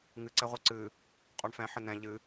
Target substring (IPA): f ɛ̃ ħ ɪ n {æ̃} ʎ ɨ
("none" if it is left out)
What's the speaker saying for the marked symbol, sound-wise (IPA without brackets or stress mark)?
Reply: ɛ̃